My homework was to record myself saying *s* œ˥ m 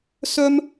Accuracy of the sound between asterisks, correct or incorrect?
correct